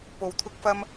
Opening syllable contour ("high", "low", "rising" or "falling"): low